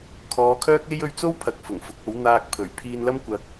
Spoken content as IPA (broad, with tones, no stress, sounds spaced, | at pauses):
kʰ ɔː˨˧ kʰ œː˥ k̚ e˥ j ɵ˧ ɥ t͡s o˥ w pʰ ɐ˨ k̚ f ʊ˨˩ ŋ f ʊ˨˥ k̚ o˨˥ w n̪ aː˧ k̚ pʰ ɵ˨˩ ɥ pʰ iː˧ n l ɐ˥ m kʷ ɐ˧ k̚